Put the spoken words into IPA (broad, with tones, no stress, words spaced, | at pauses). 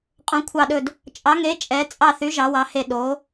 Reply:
qʼõ˨˥kʷʰɑ˦˨ɗɵ˦˨d | t͡ʃʼɑ˨˥ŋe˨˥ t͡ʃʼɛ˨˥ t͡sʼɑ˦˨θy˨˥ ʒɑ˨˥wɑ˨˥he˦˨ ɗo˨˥